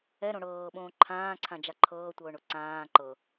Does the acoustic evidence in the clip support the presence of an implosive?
yes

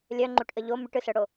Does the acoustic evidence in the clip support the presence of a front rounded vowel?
yes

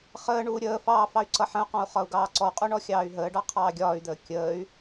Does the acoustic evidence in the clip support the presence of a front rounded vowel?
yes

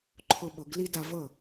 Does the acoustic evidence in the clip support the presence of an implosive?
yes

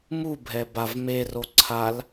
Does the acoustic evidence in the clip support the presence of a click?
yes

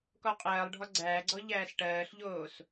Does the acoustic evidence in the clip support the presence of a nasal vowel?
no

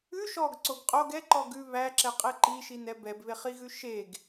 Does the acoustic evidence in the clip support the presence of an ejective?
yes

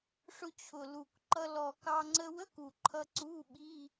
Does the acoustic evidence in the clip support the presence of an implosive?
yes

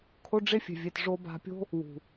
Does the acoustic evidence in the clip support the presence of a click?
no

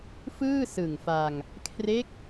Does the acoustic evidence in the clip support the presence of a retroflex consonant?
no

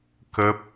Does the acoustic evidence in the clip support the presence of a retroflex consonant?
no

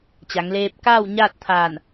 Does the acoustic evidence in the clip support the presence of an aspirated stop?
yes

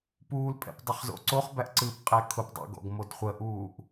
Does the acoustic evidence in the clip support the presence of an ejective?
yes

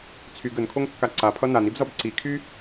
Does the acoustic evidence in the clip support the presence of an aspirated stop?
yes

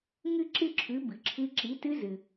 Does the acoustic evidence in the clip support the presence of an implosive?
no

